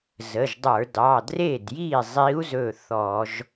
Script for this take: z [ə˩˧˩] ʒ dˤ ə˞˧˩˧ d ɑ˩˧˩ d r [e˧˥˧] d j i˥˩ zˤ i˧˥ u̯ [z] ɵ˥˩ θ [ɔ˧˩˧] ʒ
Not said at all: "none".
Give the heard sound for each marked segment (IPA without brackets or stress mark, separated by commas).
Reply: ə˩˧˩, e˥˩, z, ɔ˧˩˧